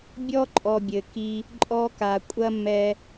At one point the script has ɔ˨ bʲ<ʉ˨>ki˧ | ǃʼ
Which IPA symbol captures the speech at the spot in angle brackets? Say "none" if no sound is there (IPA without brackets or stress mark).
ɘ˨